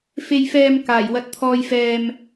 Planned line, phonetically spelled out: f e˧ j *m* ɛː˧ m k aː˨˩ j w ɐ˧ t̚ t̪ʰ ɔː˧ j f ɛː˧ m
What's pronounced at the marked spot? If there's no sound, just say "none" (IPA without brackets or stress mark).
f